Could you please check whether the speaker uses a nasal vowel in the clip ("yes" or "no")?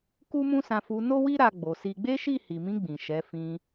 yes